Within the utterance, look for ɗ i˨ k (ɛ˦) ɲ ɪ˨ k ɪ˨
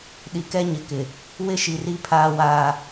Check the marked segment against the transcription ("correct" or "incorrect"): correct